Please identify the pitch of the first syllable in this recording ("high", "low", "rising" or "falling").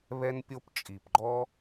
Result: high